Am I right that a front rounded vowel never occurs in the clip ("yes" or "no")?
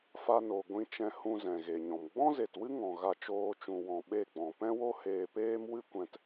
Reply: yes